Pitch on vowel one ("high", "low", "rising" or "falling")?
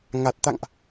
low